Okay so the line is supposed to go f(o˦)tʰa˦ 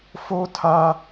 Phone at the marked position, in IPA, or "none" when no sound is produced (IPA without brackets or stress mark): o˦